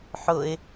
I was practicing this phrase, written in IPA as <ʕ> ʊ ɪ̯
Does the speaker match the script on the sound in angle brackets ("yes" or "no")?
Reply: no